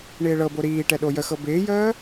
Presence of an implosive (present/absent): present